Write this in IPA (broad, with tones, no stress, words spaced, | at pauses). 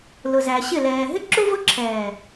lʊ˨zæ˨ɕɪ˦˨ lɛː˨ ɦɪ˦ǁu˦vʊ˦ǁʰɛː˨